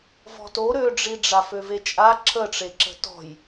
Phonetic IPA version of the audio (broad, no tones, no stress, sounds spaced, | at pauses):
v ɔ̤ t o ɾ ø ɖ͡ʐ i ɖ͡ʐ a f ø v e t͡ʃʼ a ǁʰ ə ʈ͡ʂ e ǁ ə̤ t ɔ̤ j